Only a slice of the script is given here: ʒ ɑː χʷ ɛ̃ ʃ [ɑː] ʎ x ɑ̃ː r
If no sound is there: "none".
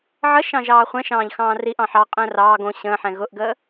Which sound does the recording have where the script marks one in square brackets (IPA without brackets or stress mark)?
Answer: ɑ̃ː